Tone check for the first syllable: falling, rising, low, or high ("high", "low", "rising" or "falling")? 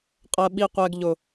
low